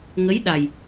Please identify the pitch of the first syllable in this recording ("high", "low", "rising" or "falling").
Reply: rising